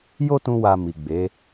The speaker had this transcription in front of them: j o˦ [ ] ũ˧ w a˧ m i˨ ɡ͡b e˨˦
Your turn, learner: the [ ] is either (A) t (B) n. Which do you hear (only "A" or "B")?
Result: A